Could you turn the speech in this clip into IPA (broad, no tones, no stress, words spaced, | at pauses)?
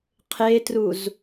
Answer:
qʰetruz